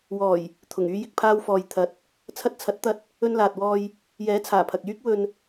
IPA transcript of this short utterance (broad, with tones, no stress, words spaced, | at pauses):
wɔː˨˩j | t̪ʰʊ˨˩ŋyː˧ jɪ˨k̚pʰaː˧wfɔː˨j t̪ʰɐ˨˥t̚ | t͡sʰɐ˧t̚t͡sʰɐ˨˥t̚t̪ɐ˧t̚ | ɵ˧nlaː˨t̚ wɔː˧j | jɛː˨˥t͡sʰaː˨˩ pʰɐ˨k̚jyː˥k̚ wɵ˨n